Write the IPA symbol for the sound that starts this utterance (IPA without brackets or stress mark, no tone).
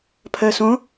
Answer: pʰ